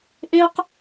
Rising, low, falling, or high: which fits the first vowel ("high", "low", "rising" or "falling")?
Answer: high